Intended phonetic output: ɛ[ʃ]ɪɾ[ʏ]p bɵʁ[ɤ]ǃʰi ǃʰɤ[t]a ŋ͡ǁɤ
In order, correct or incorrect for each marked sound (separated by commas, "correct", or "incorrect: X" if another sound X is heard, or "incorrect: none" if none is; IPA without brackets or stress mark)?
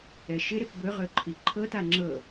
correct, incorrect: ɪ, incorrect: ɵ, correct